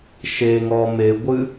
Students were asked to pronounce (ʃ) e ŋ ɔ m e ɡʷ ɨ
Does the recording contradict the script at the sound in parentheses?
no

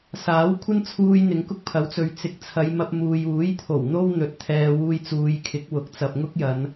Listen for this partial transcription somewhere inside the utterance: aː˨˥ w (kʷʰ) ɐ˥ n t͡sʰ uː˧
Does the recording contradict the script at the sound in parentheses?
no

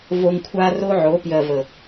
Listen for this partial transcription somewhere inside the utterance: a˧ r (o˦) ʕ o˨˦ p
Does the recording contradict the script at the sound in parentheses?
no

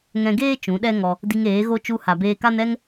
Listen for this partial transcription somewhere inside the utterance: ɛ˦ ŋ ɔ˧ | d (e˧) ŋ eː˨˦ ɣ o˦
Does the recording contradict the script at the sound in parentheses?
yes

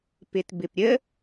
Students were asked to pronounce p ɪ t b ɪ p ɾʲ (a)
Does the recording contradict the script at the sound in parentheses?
yes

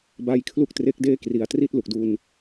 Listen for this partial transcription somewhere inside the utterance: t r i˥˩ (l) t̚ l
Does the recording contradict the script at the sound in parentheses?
yes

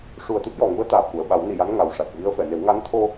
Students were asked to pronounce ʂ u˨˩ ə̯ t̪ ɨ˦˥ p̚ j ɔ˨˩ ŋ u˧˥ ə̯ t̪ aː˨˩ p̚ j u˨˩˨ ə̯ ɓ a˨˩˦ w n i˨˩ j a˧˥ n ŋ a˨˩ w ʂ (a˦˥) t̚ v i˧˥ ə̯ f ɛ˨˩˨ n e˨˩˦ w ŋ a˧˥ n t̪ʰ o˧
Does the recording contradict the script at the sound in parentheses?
yes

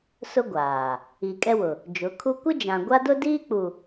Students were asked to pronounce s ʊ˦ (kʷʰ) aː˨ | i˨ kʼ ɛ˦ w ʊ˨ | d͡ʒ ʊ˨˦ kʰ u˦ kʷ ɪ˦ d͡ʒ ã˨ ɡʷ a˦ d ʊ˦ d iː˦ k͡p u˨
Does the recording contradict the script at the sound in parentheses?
yes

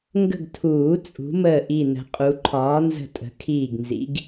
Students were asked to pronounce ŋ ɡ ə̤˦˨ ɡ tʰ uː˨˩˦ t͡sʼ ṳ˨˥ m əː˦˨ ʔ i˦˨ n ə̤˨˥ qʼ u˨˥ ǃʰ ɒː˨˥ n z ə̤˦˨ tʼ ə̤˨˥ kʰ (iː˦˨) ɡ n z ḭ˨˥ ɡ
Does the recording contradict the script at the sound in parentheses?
no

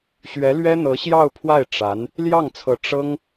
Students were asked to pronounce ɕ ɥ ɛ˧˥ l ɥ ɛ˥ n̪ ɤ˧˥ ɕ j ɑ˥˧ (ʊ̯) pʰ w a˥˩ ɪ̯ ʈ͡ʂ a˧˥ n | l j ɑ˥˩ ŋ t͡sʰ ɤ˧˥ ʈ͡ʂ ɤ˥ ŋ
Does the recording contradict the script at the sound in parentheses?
no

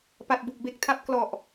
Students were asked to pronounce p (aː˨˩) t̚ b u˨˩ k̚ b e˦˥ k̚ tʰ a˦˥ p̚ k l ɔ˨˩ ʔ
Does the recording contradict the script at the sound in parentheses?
yes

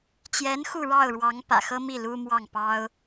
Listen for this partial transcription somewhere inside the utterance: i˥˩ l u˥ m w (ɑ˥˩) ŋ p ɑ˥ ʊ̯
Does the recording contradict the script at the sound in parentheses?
no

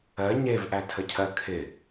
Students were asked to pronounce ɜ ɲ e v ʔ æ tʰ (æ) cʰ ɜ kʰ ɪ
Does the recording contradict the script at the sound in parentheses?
yes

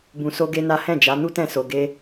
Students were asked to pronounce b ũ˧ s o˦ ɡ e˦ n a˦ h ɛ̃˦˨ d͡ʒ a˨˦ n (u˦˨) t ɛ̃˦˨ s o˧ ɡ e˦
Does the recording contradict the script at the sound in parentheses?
yes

